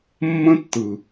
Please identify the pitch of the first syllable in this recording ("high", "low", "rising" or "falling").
high